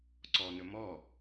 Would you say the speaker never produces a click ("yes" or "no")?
no